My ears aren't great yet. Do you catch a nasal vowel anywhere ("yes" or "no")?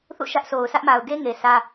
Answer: no